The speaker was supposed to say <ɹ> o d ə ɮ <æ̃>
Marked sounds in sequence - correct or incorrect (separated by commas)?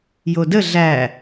incorrect, incorrect